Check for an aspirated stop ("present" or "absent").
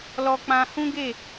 absent